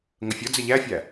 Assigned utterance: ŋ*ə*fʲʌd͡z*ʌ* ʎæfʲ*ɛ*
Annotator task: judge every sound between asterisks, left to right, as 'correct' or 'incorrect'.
correct, incorrect: ə, incorrect: æ

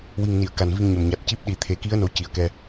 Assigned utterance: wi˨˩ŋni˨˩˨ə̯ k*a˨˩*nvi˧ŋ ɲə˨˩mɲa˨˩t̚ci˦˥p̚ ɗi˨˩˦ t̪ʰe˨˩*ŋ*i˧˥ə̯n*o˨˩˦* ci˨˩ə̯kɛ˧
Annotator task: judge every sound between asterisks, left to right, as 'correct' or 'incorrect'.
correct, incorrect: k, correct

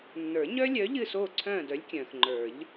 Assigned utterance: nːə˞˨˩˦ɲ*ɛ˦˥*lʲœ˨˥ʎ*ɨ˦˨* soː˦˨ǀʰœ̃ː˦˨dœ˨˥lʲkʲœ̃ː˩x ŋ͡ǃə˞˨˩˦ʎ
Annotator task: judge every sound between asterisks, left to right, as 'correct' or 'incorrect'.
incorrect: œ˦˥, correct

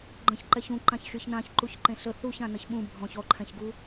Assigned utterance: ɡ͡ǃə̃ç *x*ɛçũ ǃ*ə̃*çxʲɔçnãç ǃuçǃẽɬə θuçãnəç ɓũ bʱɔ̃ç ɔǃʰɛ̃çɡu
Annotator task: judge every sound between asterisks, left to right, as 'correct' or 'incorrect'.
incorrect: ǃ, incorrect: ã

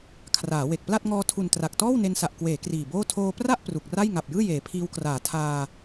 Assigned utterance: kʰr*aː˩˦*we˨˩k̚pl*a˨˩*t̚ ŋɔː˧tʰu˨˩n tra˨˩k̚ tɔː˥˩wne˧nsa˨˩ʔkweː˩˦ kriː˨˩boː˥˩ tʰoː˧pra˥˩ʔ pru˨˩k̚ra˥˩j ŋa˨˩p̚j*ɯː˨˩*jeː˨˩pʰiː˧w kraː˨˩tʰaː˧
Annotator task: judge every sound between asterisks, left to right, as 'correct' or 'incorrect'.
correct, incorrect: a˥˩, incorrect: ɯː˥˩

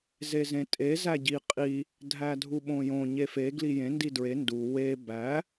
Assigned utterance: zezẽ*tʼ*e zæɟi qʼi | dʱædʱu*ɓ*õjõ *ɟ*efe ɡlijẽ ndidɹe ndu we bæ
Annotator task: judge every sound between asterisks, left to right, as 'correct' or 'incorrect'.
correct, correct, incorrect: ɲ

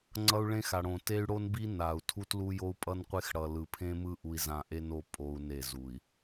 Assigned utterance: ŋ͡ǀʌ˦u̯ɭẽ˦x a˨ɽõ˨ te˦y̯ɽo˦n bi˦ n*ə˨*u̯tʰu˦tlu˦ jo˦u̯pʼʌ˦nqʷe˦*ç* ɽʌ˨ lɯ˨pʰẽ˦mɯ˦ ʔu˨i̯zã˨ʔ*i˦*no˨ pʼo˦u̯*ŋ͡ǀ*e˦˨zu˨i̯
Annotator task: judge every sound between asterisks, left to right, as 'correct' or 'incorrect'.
incorrect: a˨, incorrect: x, incorrect: e˦, incorrect: n

